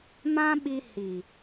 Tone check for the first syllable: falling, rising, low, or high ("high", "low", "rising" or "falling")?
high